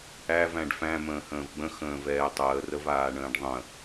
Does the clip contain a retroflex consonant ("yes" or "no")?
yes